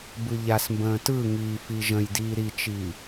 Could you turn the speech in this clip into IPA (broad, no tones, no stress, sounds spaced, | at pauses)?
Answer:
b ɯ ʎ a s m b ə̃ː t ɯ ŋ iː f i ʒ ə̃ j d iː ɾ i t͡ʃ i